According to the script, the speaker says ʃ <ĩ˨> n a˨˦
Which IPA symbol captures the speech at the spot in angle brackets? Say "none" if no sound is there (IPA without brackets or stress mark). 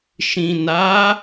ĩ˨